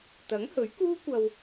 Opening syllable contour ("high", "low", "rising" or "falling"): rising